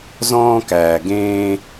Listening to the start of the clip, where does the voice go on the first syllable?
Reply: high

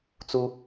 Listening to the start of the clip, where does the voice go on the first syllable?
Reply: high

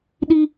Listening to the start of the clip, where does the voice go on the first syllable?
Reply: high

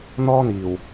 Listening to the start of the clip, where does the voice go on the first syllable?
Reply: high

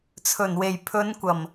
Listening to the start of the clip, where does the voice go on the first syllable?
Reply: low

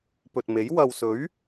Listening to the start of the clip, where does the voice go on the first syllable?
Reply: low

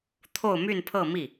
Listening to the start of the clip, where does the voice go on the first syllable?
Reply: falling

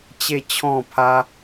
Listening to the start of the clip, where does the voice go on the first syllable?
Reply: falling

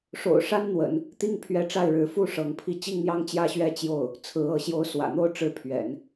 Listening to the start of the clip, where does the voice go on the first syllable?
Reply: low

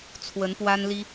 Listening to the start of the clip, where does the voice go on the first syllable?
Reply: rising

